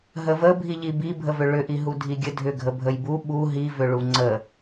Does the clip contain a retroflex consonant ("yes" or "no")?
yes